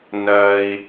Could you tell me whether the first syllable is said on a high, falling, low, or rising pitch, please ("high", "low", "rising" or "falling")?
low